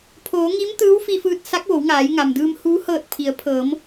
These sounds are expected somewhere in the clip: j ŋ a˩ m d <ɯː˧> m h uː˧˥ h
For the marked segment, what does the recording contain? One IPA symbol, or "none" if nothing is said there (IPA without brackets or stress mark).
ɯː˧